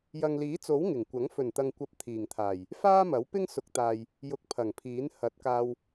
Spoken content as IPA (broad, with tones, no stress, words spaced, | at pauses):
jɐ˨ŋliː˨˥t͡so˨˥w ŋɪ˨˩ŋkʷɐ˨˥ŋ fɵ˨˩nt̪ɐ˨ŋkʷɐ˨p̚ t̪ʰiː˨˩ŋt̪ʰaː˨˩j | faː˥mɐ˨˥wpɪ˥ŋ sʊ˨˥k̚t̪aː˨j | jʊ˧k̚pʰɐ˨˩ŋpʰiː˨˥n hɐ˨˥t̚kaː˧w